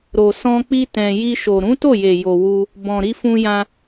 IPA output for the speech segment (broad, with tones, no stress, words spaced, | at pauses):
ɾo˨sɔ̃˧ k͡pi˦tɛ̃˧ ji˧ʃo˨ ɾũ˨˦to˦˨je˨jo˨ wu˧ | bɔ̃˨ɾi˧fũ˧jã˧